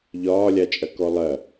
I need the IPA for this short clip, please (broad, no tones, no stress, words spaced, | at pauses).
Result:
ʎɒːlʲat͡ʃʼɐkɔ lˠɐ